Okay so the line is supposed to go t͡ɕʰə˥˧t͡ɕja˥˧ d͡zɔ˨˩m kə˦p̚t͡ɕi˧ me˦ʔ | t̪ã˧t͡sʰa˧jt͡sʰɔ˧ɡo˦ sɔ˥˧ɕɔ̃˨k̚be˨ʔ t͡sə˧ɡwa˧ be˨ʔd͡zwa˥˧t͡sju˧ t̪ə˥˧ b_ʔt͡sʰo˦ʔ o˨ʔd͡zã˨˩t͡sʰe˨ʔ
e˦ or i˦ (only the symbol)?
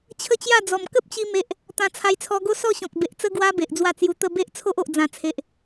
e˦